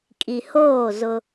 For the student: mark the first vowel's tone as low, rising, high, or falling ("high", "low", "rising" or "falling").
low